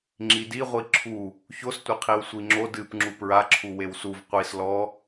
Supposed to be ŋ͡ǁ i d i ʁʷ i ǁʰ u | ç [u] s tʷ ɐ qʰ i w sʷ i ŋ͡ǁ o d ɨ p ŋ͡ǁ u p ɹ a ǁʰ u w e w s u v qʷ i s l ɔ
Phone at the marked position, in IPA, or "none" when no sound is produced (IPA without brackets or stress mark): o